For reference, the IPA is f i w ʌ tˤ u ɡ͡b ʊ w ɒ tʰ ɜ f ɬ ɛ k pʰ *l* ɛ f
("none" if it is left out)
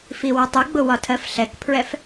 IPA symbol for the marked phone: ɹ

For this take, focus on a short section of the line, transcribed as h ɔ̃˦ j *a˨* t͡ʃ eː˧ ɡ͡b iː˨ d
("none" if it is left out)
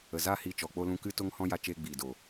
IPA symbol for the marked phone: a˧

